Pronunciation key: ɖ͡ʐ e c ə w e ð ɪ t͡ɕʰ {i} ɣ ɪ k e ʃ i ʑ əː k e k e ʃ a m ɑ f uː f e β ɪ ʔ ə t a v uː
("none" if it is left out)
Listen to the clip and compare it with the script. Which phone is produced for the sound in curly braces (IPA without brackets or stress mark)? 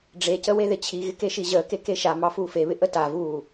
i